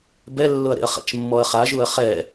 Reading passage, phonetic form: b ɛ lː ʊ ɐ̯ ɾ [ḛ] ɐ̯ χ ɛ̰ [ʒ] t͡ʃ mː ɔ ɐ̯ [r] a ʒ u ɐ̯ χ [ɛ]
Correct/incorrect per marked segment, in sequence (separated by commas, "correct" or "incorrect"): correct, incorrect, incorrect, correct